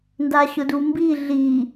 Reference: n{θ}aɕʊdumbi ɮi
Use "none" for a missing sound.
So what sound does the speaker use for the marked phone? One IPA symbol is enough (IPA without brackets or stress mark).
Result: d